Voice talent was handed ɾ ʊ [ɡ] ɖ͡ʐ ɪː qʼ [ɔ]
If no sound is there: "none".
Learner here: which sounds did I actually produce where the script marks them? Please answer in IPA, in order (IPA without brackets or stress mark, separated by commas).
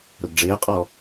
ɡ, ɔ